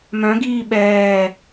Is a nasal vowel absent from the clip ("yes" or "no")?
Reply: no